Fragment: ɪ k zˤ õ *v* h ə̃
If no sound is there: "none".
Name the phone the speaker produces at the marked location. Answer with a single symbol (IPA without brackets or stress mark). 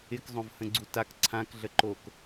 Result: v